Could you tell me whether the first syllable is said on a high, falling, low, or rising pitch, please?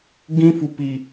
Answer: high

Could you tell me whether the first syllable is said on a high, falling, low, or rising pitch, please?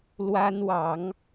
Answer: high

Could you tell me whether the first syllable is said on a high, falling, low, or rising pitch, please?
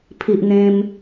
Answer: low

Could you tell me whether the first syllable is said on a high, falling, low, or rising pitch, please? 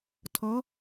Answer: rising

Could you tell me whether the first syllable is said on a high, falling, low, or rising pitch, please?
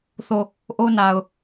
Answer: falling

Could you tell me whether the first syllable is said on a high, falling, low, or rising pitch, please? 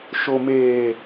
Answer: low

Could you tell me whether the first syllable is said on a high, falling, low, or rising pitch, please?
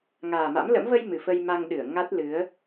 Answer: low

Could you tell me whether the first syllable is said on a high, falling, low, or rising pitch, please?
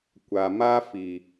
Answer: low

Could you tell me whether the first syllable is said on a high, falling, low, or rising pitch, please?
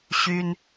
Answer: high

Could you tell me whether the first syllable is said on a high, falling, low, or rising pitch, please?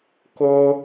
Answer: high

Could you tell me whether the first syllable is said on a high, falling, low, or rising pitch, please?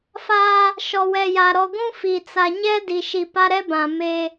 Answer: high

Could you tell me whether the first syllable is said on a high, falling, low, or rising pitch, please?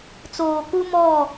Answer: low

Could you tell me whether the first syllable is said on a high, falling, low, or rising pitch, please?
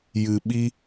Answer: low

